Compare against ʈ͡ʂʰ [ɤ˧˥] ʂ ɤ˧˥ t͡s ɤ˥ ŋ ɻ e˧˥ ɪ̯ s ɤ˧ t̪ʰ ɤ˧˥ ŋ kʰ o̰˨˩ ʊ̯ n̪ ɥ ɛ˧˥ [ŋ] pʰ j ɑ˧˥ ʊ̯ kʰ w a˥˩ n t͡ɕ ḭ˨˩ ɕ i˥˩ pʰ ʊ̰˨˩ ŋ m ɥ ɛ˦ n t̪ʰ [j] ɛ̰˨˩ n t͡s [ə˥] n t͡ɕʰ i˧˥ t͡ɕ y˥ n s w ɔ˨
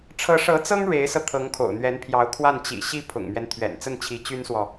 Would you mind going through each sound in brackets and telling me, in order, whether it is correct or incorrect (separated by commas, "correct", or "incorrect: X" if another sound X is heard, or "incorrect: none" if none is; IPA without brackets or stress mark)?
correct, incorrect: n, incorrect: ɥ, incorrect: ə˥˩